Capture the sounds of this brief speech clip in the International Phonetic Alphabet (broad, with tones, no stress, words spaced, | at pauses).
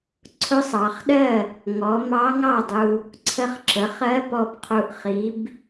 ǀʰʊ˧˥sˤɑ˩˧χɗɜ˥˩ | ŋɔ˩˧ mɑ˧˥ŋɑ˥˩dˤu˧ | ǀʰə˧χǁə˩˧χɜ˧˥ pɔ˧bqʰu˧ʔ χi˧˥b